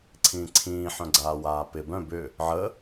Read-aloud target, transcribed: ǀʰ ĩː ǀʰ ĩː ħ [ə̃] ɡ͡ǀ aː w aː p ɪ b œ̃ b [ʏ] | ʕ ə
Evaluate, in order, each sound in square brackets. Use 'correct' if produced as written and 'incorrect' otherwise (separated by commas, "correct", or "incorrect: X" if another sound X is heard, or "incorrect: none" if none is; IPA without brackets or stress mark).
incorrect: œ̃, correct